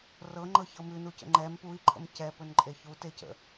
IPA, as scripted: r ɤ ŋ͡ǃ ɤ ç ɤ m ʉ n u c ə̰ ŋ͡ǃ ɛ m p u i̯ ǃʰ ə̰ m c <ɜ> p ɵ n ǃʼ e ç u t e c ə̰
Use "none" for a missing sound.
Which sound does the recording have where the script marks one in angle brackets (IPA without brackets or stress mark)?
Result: ɛ